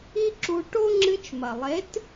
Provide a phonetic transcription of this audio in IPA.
i˦ ǁ u˧ ʈ o˦ ŋ͡ǁ ɨ˧ t͡ʃ m ɐ˨ lˠ e˨˦ t

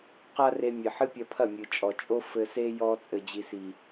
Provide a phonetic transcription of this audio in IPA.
q a˦ r e˧ mʲ ɘ˨ ħ ɨ˦ pʲ ɐ˧ pʰ ɐ˦˨ mʲ ɨ˨ t͡ʃʼ ɔ˨ t͡ʃʼ o˦ f ɘ˧ s e˦ j ɔ˧ t͡sʼ ɘ˨ d͡ʑ i˨ s i˨

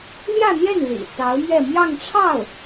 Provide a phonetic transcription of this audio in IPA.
l j ä˥˧ n̪ j ɛ˥˩ n l ḭ˨˩ t͡s ɑ˧˥ ʊ̯ m ɥ ɛ˥˧ m j ɑ˥˧ ŋ ʈ͡ʂʰ ɑ˥˩ ʊ̯

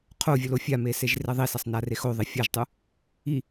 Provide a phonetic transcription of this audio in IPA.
qʰ o vʲ ɵ l o fʲ a m e s e ʒ r e ðˤ i s ɐ sˤ n a r e x o ðˤ i fʲ a ʒ tˤ u | i

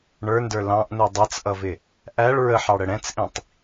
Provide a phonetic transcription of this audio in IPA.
ɳ ə˞ n d ə˞ l ɑ̃ ʔ n u dˤ ɛ t͡s ʔ ʌ v ɪ | ʔ æ ɭ ɹ ə ħ ɑ ɽ ə ɽ ɛ̃ t͡s ʔ ĩ tˤ

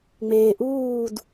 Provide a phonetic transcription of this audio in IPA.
ŋ͡m eː˨ ʔ uː˥˨ d

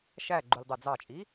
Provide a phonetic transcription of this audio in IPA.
ʃ æ ɡ͡ǃ u lʲ dˤ æ d͡z ɑ t͡ʃʼ i

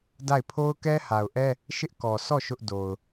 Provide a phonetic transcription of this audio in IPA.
d a˦˨ ɪ̯ pʰ o˦ ʊ̯ k ɛ˦ h a˨ ʊ̯ ʔ ɛ˦ | ʃ ɪ˦ ʔ k ɔ˨ sʰ ɔ˦˨ ʃ ʊ˦ ʔ d o˨ ʊ̯

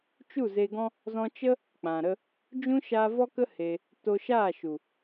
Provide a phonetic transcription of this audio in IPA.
t͡ʃ u˦˨ z e˧ ɡ ɔ̃˦ | z ɔ̃˧ t͡ʃ ə˦ | k͡p ã˨ ɾ ə˦ | d͡ʒ ũ˦ ʃ a˧ v ɔ˦ k ə˦ h e˧ | t o˧ ʃ aː˦˨ ʃ u˨

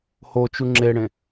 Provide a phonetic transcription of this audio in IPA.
h o t͡ʃ u ŋ͡ǁ e ɽ ẽ

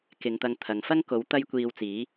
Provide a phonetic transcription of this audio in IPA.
k ɪ˨˧ ŋ t̪ ɐ˧ ŋ t̪ʰ ɐ˨ ŋ f ɐ˥ ŋ k o˨˥ w t̪ ɐ˥ j kʷ iː˧ w t͡s iː˨˥

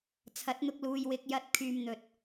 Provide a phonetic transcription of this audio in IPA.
t͡sʰ ɐ˨˥ t̚ n̪ ʊ˧ k̚ l uː˨ j w ɪ˧ k̚ j ɐ˨ t̚ kʰ yː˨ m n̪ ɵ˨ t̚

